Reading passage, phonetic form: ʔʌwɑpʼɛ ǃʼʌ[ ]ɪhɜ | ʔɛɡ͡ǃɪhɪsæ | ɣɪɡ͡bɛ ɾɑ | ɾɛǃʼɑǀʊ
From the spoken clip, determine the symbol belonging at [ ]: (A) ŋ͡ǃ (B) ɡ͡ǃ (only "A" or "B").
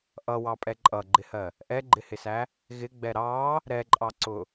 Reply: B